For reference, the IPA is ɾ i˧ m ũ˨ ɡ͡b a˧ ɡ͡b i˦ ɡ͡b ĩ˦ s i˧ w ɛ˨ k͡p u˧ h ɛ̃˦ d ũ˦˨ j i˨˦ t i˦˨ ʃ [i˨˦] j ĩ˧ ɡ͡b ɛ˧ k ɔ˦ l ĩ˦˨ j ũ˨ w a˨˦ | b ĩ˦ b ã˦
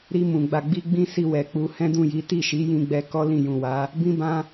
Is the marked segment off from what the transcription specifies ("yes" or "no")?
no